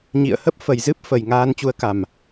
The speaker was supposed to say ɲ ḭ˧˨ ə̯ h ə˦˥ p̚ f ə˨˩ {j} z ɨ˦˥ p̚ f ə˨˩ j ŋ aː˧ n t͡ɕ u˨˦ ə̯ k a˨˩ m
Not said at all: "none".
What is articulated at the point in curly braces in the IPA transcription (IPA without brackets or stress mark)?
j